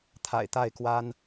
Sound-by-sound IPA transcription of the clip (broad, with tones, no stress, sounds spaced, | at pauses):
t̪ʰ a̰˨˩ ɪ̯ t̪ a˥˨ ɪ̯ k w a˦ n